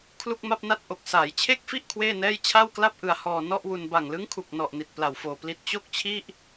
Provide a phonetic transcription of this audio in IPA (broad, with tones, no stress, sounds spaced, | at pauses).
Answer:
kʰ l u˥˩ k̚ m a˥˩ p̚ n a˥˩ t̚ ʔ o˨˩ k̚ s aː˩˦ j t͡ɕʰ e˥˩ k̚ f i˥˩ ʔ kʰ w eː˥˩ n ɛː˥˩ j t͡ɕʰ a˥˩ w k l a˥˩ p̚ ʔ ɯ˧ a̯ h ɔː˧ n ɔ˥˩ ʔ w u˧ n b a˨˩ ŋ l ɯ˦˥ ŋ kʰ u˨˩ k̚ n ɔ˨˩ ʔ n i˨˩ t̚ p l a˨˩ w f oː˨˩ p l i˦˥ t̚ t͡ɕ o˥˩ k̚ t͡ɕʰ i˥˩ ʔ